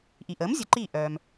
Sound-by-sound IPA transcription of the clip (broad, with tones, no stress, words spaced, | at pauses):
ʔi˩ ʔəː˩˥mzʲə˩˥ǃiː˧˩ ʔœː˩m